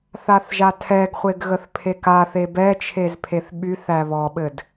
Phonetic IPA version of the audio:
θaθʒatʰɛɡχʷeɡ ɣəθpʰekaθe bɛt͡ʃʰez pʰeθɓyθæ βɔɓɘd

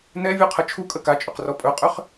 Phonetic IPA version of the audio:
nɛvʲuqʰə t͡ʃʰukʼə kat͡ʃʼɵqrɔ pʼɵqʼʏχ

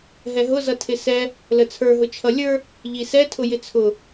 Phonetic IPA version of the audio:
ɦɛɦʊzʌ tʰɪsɛ | lət͡sʰə˞ɦʊ t͡ʃʰʌlʲə˞ | ʎisɛtʰʊ jɪt͡sʰʊ

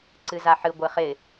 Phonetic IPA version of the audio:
ǀɨzaħɨ ɡʷɪχɪ

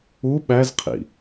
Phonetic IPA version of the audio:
u ɓæzqʰḭ

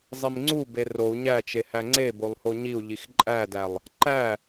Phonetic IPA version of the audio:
zˤimŋ͡ǀube rou̯ ɲæt͡ʃe hæŋ͡ǀebolˠ hoɲiu̯ʎix ǃʼædælˠ | ǃæ

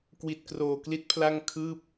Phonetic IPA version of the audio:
kwi˨˩t̚kroː˨˩kli˦˥t̚pʰla˥˩ŋ kʰɯː˥˩p̚

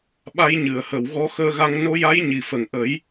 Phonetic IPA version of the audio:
ɓa˧jɲɨ˨˩˨ə̯hə˨˩˨w ɣɔ˧xəː˧ɣa˧ŋ no˧ja˧˥j ɲi˨˩fə˨˩ŋ ʔə˨˩˦j

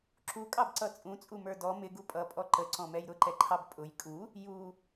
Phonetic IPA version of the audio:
ǁukʼɑbǀʌ t͡sʼũt͡sʼumə˞ dɔ mɪɡu pʼʌpʼɔ ǃəǀɔ̃mɛj ɾʊǃɛǃʰɑb pʼʊj kʼu | ju

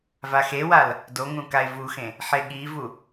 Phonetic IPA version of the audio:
vaxewal | doŋũ kae̯vuxẽ | ħeɠivu

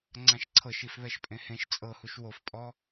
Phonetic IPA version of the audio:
ŋ͡ǀãʃǀʰɤʃ ifβɛʃpʼẽhẽʃ t͡sʼɤhuʃ wofpʼɔ

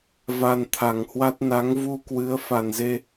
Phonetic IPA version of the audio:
va˧nt̪ʰa˨˩ŋhwa˦˥t̚ na˨˦ŋvu˧kwɨ˨˦ə̯ fa˨˩nze˧

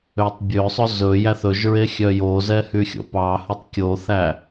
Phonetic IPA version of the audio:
øtˤbʲøsˤɵ zɵ jæθɵʒɹe xʲœjozɛ hyxʲo̰pɑhɵtˤ kʲoθæ

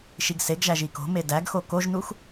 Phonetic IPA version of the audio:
ʃiɡseɡʒæʒ iko̤me dæɡxo koʒnux

